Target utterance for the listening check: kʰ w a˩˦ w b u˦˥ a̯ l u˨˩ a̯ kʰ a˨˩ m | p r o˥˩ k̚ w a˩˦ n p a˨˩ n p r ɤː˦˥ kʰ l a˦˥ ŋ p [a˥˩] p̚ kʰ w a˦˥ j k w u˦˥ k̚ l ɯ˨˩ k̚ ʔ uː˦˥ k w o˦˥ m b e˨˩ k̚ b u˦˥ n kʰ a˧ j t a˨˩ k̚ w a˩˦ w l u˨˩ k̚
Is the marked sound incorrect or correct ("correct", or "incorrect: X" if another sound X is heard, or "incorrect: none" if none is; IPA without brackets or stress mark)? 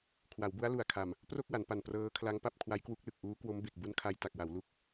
correct